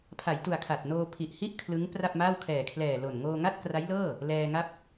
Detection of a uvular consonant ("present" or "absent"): absent